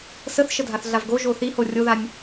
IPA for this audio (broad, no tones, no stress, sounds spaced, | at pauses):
s ə θ ʃ ə dʱ a θ ɮ a v ɡ o ʒ o θ i h o rʲ o ð a nʲ